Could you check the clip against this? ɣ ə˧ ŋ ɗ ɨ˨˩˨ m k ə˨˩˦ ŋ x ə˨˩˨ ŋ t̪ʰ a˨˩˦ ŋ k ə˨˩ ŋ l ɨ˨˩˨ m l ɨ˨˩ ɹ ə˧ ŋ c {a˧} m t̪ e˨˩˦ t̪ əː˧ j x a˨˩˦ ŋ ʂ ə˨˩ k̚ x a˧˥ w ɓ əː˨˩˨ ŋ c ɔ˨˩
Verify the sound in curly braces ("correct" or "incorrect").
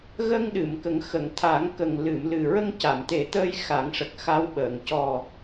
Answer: incorrect